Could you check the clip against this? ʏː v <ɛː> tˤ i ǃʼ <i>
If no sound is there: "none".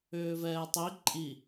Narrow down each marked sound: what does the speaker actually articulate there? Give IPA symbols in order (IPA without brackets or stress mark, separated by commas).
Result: ɛː, i